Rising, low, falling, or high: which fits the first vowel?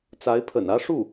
rising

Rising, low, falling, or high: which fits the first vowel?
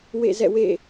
falling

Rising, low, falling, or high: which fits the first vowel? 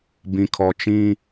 low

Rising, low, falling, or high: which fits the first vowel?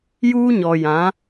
high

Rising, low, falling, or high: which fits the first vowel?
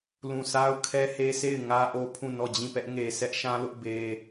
low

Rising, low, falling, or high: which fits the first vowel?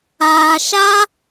low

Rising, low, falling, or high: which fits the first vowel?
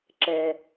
low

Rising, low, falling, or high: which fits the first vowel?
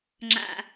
low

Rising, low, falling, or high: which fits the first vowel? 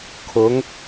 rising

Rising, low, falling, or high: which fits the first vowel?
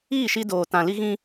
falling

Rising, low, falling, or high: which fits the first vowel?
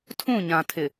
falling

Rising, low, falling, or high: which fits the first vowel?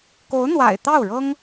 rising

